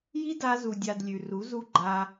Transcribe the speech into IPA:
j i˦ d a˧ z u˨ dʲ a˨ d lʲ ʉ˨ r u˨˦ z u˦ ɡ͡ǃ a˧

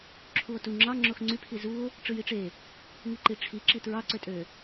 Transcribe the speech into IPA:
ǁʰ u o̯ t u ŋ͡ǁ ɑ ŋ͡ǁ o x ŋ͡ǀ y pʰ i z u o̯ | ʈ͡ʂ ɯ j i ʈ͡ʂ e | ŋ i ǃ i ʈ͡ʂʰ i ǁ i t ɹ ɑ ǀ ø tʼ ø

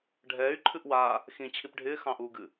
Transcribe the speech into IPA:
ɖʱ ɛː y̯ ǃʰ ɨ ʔ w aː | x ĩ t͡ɕʰ i p ɖʱ ɪː x ɑ̃ ʔ uː ɡ ɨ

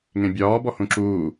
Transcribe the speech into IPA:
ŋ ẽ bʲ ɒː b ɔ h ũ ǁ uː

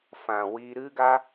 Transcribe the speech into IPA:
f ã˧ w i˦ ɾ ɨ˦ ɡ a˦

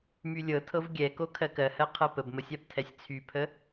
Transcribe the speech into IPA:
m y lʲ ɤ tʰ ɤ v ɡʲ ɛ k o kʰ ɜ k ɜ h ɜ qʰ ɤ p ə b m ə sʲ a b tʰ ɛ sʲ t͡sʰ y pʰ ə

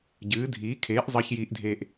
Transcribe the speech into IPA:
ɟ ɨː˩˥ dʱ iː˩˥ kʰ eː˩˥ ʔ zˤ əː˧ ç j iː˧ ʔ dʱ eː˧ ʔ

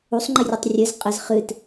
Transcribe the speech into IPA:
u sˤ ŋ͡ǃ i rʲ o tˤ rʲ ɘ z qʼ ɘ z χ ɨ t

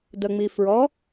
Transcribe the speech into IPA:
d ə ŋ͡m i f ɹ ɔ

